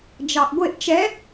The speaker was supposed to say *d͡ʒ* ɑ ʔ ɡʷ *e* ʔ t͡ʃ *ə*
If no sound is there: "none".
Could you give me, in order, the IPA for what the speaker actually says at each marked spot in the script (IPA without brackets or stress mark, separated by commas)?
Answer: d͡ʒ, e, ɛ